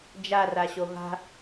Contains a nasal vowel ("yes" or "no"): no